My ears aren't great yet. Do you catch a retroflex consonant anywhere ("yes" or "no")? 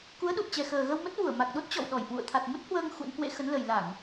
no